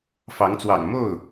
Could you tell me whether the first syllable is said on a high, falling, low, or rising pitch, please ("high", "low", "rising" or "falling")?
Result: rising